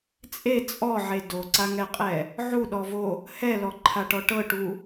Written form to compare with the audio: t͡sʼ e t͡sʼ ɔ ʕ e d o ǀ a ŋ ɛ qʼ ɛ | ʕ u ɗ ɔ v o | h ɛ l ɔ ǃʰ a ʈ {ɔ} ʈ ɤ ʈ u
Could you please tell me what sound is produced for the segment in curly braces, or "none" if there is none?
ɔ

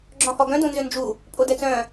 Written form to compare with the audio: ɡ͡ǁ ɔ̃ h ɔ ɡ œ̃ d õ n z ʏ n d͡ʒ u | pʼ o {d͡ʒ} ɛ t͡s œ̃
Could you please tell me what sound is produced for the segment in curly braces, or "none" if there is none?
d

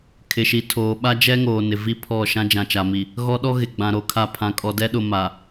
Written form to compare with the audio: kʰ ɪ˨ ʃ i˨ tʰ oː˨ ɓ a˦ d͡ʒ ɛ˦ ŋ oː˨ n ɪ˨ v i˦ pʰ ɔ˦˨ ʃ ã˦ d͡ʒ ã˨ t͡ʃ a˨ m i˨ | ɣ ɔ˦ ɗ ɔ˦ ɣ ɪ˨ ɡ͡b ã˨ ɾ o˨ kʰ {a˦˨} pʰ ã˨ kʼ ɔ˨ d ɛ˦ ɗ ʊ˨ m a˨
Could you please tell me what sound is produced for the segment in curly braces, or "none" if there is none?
a˦˨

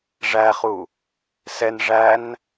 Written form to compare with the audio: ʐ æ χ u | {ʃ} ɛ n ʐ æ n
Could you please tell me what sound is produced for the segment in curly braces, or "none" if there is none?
s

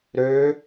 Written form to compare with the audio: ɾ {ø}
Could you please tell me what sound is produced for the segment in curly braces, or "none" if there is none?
ø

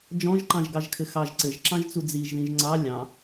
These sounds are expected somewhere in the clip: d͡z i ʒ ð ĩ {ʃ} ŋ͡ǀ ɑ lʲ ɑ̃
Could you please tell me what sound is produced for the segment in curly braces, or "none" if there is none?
ʒ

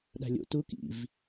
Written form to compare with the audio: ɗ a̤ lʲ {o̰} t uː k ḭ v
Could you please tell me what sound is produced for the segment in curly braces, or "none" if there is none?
o̰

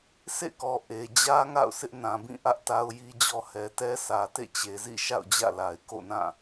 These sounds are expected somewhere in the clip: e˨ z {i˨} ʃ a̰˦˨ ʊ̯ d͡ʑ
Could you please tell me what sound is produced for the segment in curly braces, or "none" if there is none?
ḭ˦˨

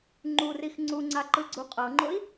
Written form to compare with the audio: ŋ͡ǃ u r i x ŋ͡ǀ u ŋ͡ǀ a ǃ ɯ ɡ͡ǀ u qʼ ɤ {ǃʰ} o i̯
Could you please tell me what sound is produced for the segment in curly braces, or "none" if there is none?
ŋ͡ǃ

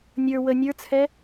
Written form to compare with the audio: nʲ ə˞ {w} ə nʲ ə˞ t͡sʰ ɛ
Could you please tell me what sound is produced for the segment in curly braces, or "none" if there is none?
w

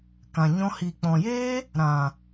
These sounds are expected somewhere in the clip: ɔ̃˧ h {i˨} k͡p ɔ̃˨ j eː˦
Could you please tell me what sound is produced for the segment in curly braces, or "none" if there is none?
i˨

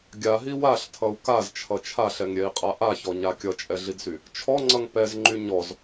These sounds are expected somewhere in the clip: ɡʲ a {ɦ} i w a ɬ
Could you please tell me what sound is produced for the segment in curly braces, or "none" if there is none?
ɦ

